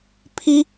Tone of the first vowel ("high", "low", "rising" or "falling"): high